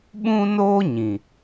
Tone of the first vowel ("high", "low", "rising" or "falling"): high